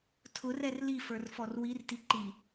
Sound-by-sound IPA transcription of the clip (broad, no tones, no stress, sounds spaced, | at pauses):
tʰ ʊ r ɛ r l i f ə˞ r f ɔ r w i r t i ǃ i